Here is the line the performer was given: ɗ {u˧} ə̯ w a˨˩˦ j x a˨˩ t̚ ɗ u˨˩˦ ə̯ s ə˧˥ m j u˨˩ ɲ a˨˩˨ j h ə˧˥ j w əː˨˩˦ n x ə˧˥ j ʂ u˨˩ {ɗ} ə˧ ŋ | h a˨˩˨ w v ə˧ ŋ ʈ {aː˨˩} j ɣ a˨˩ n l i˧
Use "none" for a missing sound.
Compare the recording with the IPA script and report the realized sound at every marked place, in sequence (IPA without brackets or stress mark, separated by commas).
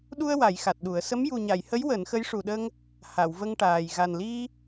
u˧, ɗ, aː˨˩